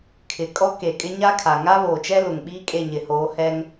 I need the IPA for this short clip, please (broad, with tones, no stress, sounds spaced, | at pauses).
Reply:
kʰ ɪ˨ kʼ ɔ˦ k e˨ kʼ ɪ˦ ɲ a˦ kʰ a˨ ŋ a˦ β oː˨ t͡ʃ ɛ˦ l ʊ˨ ŋ ɓ iː˦ kʼ e˦˨ ɲ ɪ˨ h oː˨˦ h ɛ˦ ŋ